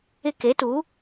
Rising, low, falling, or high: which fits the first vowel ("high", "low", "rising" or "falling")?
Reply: high